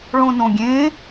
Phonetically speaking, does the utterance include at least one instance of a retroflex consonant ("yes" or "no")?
yes